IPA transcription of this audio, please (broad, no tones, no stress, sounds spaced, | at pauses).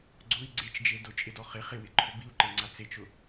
ɡ͡ǀ ʊ i̯ ɡ͡ǀ e t͡ʃ d͡ʒ e d ʊ t͡ʃʼ ɪ d ɔ χ ɪ χ ɪ w ɪ ǃʰ ʊ b i u̯ ǃ e ŋ͡ǀ a t͡s e t͡ʃ ʊ